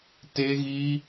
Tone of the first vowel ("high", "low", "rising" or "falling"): high